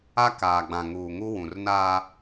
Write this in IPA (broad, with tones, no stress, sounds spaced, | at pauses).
a˦ k aː˨ ɡ͡b ã˨ ŋ uː˨ ŋ u˦ w ũ˨ r n a˦